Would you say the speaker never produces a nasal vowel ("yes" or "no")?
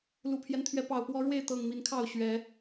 yes